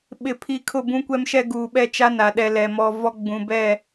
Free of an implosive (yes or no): no